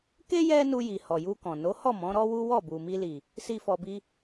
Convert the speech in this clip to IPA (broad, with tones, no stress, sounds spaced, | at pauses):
k e˦ j ɛ˦ n u˧ j i˨ h ɔ˨ j u˧ k ɔ̃˨ n o˨˦ h ɔ˦˨ m ɔ̃˨˦ ɾ ɔ˦ w u˦ w ɔ˦˨ b u˨ m i˧ l i˨ | s i˧ f ɔ˧ b i˦